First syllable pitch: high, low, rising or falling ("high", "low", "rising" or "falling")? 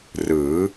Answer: rising